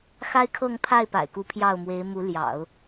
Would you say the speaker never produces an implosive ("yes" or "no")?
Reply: yes